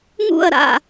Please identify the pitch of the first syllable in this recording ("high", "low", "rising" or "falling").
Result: falling